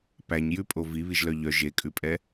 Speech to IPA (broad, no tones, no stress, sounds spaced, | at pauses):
p æ ɲ j ʉ pʼ o v i β i ʒ l œ ʎ œ ʒ e kʼ ʉ pʼ ɛ